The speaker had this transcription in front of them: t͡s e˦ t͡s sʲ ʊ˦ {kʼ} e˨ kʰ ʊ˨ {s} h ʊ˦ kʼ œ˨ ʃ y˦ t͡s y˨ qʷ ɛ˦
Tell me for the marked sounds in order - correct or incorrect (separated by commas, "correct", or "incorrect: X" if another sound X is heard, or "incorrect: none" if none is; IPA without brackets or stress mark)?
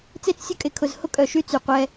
correct, incorrect: z